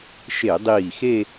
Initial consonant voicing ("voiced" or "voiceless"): voiceless